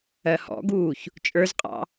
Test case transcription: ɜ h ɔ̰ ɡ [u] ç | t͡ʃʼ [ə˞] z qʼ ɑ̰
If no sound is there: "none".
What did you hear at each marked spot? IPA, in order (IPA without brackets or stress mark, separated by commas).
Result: uː, ə˞